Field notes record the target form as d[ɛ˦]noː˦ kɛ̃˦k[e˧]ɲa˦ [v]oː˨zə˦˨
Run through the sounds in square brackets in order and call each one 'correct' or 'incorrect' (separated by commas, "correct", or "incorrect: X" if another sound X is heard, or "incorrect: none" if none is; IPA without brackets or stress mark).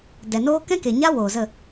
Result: incorrect: ɛ˨, incorrect: e˨, incorrect: w